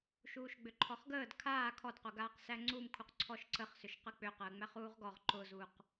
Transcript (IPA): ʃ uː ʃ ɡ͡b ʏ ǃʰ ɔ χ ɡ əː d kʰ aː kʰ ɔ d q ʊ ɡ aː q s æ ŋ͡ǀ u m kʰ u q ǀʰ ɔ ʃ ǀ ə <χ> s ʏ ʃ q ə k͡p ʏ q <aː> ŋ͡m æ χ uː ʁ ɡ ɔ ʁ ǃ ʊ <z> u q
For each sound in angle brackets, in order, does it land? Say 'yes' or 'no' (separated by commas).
yes, no, yes